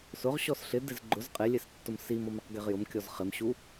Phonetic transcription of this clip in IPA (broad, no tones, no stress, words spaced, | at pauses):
sʊʁ ɕɔsɬɪ dɪzɡ͡ǃʊz qʼelʲestːʊm simɔmɪq ɡeʁjʊm kʲɔzχɪmɕu